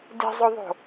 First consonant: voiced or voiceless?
voiced